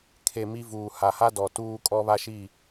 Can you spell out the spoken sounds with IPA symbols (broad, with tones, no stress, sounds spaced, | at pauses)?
kʰ e˨ m i˦ v uː˨ h a˨ h a˦ d ɔ˨ t uː˦ kʼ ɔ˦ β a˦ ʃ i˦˨